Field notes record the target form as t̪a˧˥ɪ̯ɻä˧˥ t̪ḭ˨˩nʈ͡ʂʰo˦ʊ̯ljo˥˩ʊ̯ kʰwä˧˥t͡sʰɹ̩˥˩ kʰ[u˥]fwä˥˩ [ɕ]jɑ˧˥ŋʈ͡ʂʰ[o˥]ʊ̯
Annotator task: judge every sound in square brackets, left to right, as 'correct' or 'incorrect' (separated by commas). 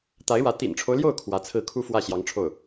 correct, correct, incorrect